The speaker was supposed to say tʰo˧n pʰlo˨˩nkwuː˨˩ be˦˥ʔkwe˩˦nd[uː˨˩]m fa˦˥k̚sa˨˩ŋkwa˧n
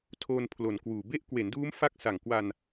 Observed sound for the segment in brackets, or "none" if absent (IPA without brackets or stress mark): uː˦˥